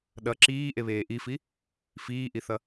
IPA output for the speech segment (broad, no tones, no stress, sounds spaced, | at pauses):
ɗ ʌ ǁ iː ʔ e β eː ʔ i f i | f iː ʔ i θ ʌ